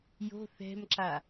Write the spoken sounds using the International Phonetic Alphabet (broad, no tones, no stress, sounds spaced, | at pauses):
j o̤ θ ɛ̤ m ǁ a